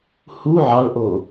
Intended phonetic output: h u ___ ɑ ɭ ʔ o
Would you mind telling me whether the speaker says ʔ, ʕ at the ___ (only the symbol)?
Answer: ʕ